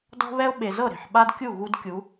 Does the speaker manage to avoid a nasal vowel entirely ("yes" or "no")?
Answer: yes